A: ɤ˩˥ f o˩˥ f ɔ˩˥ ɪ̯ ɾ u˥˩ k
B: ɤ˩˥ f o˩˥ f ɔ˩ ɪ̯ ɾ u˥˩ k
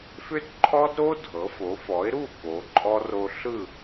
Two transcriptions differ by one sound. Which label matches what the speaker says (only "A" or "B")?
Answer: A